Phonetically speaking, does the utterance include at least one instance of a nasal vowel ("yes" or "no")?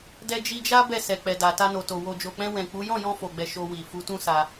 yes